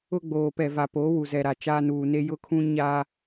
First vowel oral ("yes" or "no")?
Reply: yes